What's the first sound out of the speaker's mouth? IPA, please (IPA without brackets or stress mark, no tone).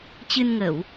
t͡ɕ